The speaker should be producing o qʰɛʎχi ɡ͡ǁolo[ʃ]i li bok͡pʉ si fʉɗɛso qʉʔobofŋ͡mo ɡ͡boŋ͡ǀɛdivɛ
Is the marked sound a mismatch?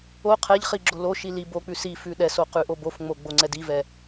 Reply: no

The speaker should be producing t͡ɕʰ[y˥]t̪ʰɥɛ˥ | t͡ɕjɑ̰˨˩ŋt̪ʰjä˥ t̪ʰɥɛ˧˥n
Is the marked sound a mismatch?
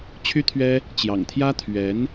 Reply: no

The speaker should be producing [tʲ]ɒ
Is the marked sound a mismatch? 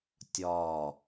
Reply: no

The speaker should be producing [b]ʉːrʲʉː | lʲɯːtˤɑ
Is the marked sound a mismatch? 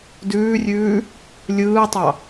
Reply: yes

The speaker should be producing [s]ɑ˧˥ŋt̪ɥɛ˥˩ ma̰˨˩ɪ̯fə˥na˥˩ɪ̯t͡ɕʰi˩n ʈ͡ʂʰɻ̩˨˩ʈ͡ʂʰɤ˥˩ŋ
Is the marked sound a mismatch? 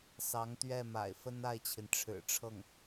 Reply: no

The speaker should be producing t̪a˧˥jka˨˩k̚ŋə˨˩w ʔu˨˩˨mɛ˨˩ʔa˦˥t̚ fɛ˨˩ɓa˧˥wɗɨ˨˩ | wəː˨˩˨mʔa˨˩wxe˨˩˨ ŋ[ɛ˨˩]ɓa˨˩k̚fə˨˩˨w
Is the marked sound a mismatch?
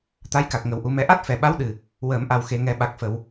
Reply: yes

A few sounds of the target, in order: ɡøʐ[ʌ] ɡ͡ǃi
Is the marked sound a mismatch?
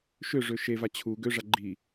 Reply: yes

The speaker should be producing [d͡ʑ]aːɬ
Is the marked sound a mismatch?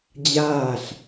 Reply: no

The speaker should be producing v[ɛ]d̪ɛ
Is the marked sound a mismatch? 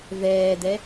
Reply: yes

